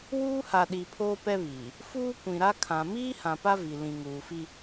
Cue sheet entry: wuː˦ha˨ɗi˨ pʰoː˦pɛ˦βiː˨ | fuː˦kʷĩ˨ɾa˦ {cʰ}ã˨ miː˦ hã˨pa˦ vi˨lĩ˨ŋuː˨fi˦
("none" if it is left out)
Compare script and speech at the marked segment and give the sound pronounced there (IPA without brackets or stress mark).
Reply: kʰ